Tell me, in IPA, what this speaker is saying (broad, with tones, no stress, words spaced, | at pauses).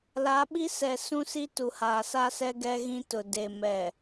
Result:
la˨˦ɓi˦ sɛ˨ sũ˦si˦ tu˨haː˨sa˦sɛ˦ ɡɛ˦ɣĩ˦tʊ˨ de˨mɛ˨